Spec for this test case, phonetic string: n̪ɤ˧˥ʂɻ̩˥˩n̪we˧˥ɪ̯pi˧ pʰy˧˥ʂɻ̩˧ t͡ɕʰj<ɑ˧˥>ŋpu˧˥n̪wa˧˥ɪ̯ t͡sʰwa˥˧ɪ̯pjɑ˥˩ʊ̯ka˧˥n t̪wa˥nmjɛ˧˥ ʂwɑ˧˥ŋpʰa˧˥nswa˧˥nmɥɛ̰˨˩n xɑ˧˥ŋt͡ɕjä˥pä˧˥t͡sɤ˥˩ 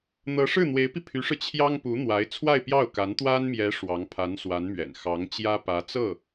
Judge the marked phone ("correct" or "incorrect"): incorrect